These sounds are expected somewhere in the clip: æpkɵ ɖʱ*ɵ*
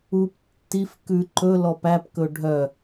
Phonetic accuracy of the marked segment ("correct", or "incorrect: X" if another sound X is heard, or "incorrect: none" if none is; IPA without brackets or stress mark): incorrect: œ